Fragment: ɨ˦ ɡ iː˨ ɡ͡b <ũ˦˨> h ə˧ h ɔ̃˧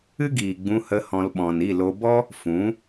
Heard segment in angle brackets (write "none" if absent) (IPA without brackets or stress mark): ũ˧